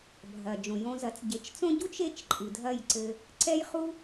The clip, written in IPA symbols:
bʱ ɐ˩ d͡ʒ õ˩ j õ˧ z ɐ˩˥ t͡s ɟ e˩˥ t͡ʃ t͡s õ˥ ɟ u˥ t͡ʃ e˥˩ t͡ʃ ǃʼ ɨ˩ dʱ ɐ˥˩ j ǀ ɘ˧ | ǀ ɛ˥ j χ u˥

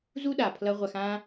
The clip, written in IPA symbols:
z u˦ ɗ a˨ pʰ l ʌ˧ ʁʷ a˧ x ã˦

